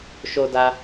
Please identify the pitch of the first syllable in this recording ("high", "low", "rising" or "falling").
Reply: high